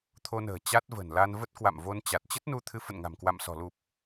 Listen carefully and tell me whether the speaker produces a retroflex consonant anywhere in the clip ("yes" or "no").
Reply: no